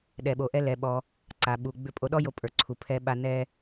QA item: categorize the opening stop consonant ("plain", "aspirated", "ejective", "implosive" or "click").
implosive